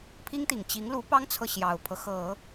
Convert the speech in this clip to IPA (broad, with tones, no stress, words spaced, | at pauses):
pʰi˥ŋt̪i˨˩ŋ t͡ɕi˧˥ŋ lu˧˥pɑ˥ŋt͡sʰɤ˨ ɕjɑ˨˩ʊ̯pʰɤ˦xɤ˨˩˦